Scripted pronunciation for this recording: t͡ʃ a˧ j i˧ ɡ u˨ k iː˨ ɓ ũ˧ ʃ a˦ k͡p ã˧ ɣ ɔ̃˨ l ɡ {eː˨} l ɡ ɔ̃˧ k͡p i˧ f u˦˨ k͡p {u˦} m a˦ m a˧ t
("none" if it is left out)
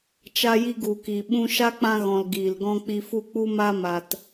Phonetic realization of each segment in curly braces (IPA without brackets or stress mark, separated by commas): iː˨, u˦